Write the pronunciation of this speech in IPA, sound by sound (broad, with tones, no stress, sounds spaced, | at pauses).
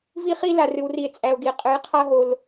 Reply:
v i˦ χ i˦ l a˨ r ɨ˨ w r i˨ e̯ t͡sʼ æ˨ o̯ ɡ i˨ qʼ ɨ˨˦ j qʰ a˦ ɦ o˦ l